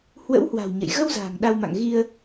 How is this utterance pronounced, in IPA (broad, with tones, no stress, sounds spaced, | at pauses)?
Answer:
h w ə̰˧˥ w h w a̤˨˩ w ɲ ə̰˧˨ j ɣ ə˧ w z a̤ː˨˩ ŋ ɗ a˧ w m a̰˧˨ ŋ ɣ i˧ ə̯